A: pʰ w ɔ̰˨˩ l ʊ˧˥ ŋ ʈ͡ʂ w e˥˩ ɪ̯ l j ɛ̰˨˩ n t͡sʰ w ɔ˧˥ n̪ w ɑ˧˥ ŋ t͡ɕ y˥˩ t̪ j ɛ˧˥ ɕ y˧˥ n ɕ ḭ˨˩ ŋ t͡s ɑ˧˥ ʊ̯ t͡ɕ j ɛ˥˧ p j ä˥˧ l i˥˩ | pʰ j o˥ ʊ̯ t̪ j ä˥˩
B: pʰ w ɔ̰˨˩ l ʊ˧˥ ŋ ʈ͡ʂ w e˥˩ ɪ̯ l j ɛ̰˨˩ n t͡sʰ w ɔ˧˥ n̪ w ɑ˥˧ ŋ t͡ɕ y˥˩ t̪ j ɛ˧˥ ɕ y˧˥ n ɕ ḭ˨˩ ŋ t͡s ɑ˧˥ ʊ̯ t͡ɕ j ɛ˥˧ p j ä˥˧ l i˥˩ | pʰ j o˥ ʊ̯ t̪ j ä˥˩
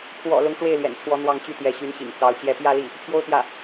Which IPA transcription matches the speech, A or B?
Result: B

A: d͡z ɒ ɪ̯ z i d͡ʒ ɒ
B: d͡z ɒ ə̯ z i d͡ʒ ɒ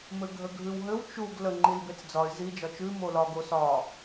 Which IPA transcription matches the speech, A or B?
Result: A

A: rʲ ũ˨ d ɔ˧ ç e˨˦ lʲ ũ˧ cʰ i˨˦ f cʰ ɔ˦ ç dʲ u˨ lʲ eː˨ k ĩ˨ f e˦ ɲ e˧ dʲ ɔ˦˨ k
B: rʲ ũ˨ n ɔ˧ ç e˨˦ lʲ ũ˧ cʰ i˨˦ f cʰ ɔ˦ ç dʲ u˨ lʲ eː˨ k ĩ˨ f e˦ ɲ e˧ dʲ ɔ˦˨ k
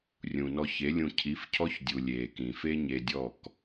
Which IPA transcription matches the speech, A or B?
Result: B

